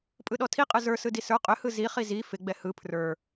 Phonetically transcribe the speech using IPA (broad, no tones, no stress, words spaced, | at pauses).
pʼɯɗɔtʰiqʼɯ zə˞ sɯdisə˞ qʼʏhɯ ziχi zi fɪɡ͡bɛ hɯ pʰrə˞